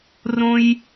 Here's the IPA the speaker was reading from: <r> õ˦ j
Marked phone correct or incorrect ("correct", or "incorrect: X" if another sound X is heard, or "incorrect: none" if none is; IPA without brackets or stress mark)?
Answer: correct